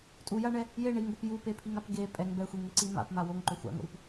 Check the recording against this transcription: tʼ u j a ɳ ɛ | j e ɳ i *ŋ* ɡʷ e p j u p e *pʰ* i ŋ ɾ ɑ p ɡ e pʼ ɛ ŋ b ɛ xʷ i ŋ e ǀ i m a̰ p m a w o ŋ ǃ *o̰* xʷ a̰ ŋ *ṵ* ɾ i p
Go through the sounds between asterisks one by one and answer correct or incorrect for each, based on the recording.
correct, correct, incorrect, incorrect

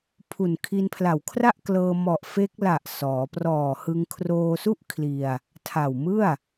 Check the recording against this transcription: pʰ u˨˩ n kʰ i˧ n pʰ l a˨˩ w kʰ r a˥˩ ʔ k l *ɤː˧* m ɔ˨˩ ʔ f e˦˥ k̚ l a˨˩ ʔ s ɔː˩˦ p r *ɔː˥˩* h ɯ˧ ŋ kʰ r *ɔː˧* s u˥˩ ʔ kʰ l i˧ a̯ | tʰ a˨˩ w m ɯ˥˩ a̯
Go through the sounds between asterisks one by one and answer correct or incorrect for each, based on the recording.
correct, incorrect, incorrect

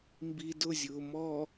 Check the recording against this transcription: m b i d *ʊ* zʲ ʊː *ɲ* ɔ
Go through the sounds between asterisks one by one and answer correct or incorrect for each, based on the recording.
correct, incorrect

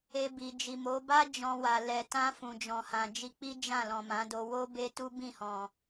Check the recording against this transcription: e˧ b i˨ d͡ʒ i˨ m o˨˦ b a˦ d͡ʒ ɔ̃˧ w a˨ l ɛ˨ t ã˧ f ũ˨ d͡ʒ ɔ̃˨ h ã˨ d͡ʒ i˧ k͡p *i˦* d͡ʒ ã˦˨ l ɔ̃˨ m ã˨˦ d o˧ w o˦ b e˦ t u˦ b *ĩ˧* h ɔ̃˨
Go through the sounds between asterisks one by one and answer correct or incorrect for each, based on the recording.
correct, incorrect

